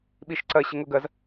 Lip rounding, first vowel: unrounded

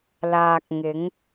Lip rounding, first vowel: unrounded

